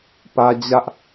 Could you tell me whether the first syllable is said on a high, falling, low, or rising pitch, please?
high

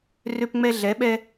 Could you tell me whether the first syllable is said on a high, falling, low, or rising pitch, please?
high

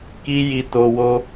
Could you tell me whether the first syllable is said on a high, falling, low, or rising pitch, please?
high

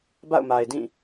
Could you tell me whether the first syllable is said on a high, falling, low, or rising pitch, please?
falling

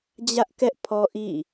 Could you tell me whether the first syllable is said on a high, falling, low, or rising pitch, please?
high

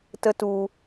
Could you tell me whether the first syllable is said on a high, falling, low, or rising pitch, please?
high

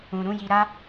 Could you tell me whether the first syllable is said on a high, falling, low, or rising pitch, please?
low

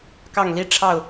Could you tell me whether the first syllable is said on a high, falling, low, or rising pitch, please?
falling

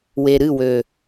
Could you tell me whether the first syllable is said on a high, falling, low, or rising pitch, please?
low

